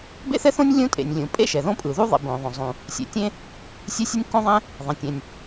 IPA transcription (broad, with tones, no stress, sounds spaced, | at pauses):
b ḛ˥ θ ɛ˥ θ õ˥ nʲ lʲ ũ˥ tʼ ḛ˩ nʲ lʲ ũ˩ pʼ ḛ˥ ʃ ɛ˩ ð õ˥ pʼ ɯ˩ ð u˥ ðˤ ḭ˩ b õ˩ ðˤ õ˩ zˤ ũ˩ | sʲ ḛ˩ tʲ ẽ˥ | sʲ e˥ sʲ ɯ˥ nʲ kː õ˥ ðˤ ɛ̃˥ | ðˤ ẽ˩ tʲ ɛ̃˩ nʲ